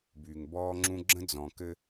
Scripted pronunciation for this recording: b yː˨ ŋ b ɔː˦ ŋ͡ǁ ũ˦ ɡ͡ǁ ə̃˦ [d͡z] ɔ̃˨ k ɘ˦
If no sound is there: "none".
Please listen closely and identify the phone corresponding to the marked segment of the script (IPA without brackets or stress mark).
d͡z